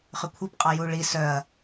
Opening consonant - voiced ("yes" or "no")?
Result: no